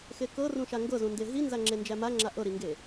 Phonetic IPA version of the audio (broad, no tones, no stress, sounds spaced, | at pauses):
x e k ɤ r ũ ʃ a ŋ ɡ ɤ z ũ n d e ɦ i n z a ŋ͡ǁ e n d͡ʒ æ m a ŋ͡ǁ a ʔ ɤ ɾ i ŋ ɡ e